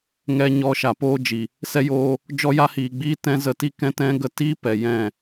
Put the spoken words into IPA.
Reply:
ŋ ɛ˧ ɲ ɔ˧ ʃ a˨ p oː˦ d͡ʒ i˨ | s ɛ˧ j oː˧ | d͡ʒ ɔ˦ j a˦ h iː˨ ɡ͡b iː˦ t ɛ̃˦ z ə˧ t i˦ k ɛ̃˦ t ɛ̃˦ ɡ ə˦ t i˦ p ɛ˨ j ɛ̃˦˨

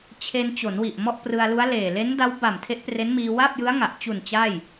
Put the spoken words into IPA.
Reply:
t͡ɕʰ e˧ n t͡ɕ o˩˦ n w i˨˩ ʔ m ɔ˥˩ ʔ p r ɯ˧ a̯ l u˦˥ a̯ l eː˨˩ l e˦˥ n d a˦˥ w b a˨˩ m tʰ e˦˥ ʔ p r e˦˥ n m iː˧ w a˥˩ p̚ j ɯ˦˥ a̯ ŋ a˨˩ ʔ t͡ɕ u˨˩ n t͡ɕ aː˥˩ j

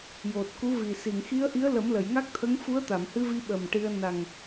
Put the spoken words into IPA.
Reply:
j o˨˩ t̚ k u˧˥ v i˨˩ s i˨˩˨ ŋ x i˧˥ ə̯ ʔ i˧˥ ə̯ l ə˨˩˦ m l ə˨˩˨ j ŋ a˦˥ k̚ t̪ʰ ə˧˥ ŋ f u˧˥ ə̯ t̪ a˨˩˨ m h ɨ˧ v i˧ ɓ ə˨˩ m ʈ i˧ ə̯ n a˨˩ ŋ

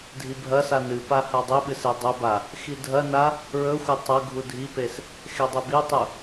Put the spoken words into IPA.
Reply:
dʱ i bʱ ɐ s a n ɨ p a h a dˤ i ɓ ɨ s e dˤ ɵ b a | x i dʱ ɐ n a | ɹ ɵ xʷ ɐ tˤ ɐ ɡʱ u dʱ i p e s | x e dˤ ɨ b i tˤ ɵ

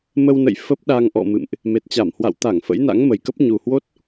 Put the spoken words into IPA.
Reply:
m ə˧ w n ə̰˧˨ j f ə˦˥ p̚ ɗ a˧ ŋ ʔ ɔ̰˧˨ m ɨ̰˧˨ m ʔ | m e˨˩ t̚ t͡ɕ a˧˩ m h w a̰˧˨ w t̪ a˧˩ ŋ f ə̰˧˥ j n a̰˧˥ ŋ m ə˨˩ j k ə˦˥ p̚ ɲ u˨˩ h w o˦˥ t̚

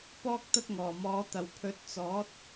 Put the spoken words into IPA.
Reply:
p ɔː˥ k̚ t̪ ɐ˥ t̚ ŋ ɔː˨˩ m ɔː˨˥ t̪ ɐ˨˩ w pʰ ɵ˨˥ t̚ t͡s ɔː˨˥ t̚

